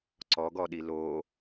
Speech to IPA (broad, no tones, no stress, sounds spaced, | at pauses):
ǀ ɔ ɡ ɔ ɗ i l o